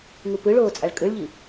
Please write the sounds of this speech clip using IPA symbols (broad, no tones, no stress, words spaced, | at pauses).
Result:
ŋupɯɭoː t͡sʼaɭkʼɯɭʎi